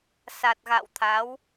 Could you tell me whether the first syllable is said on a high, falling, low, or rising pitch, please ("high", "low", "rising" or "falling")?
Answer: low